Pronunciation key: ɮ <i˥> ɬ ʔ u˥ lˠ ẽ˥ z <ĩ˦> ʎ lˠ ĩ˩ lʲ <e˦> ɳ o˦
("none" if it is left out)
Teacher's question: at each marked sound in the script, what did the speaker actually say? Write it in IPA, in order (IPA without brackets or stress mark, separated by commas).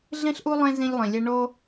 ĩ˥, ĩ˦, e˦